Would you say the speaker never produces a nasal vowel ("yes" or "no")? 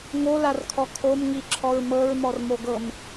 yes